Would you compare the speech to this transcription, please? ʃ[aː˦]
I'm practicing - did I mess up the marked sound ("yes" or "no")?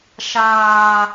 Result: no